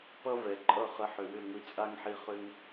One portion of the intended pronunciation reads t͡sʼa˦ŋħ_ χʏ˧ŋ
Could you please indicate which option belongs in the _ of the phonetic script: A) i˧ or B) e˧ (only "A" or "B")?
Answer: A